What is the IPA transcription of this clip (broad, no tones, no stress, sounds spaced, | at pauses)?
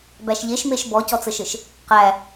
b æ ʃ ʎ e ʃ m e ʃ b ɔ c ɔ t͡s ə ʃ ɘ ʃ | q æ